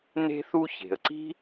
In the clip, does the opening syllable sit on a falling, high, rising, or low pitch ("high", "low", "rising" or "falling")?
high